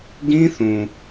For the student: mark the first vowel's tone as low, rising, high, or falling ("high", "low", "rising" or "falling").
high